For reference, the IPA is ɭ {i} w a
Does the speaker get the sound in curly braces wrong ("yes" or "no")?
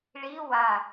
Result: no